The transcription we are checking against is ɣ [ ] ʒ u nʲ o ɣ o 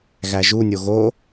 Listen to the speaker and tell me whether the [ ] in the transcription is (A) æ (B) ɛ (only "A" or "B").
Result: A